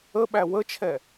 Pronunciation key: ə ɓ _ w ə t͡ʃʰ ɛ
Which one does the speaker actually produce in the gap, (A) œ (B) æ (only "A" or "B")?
B